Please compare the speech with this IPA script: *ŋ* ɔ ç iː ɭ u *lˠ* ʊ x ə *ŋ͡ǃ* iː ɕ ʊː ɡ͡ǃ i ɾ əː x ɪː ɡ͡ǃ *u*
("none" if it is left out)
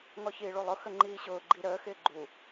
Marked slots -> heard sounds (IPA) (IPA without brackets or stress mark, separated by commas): ŋ, lˠ, ŋ͡ǃ, u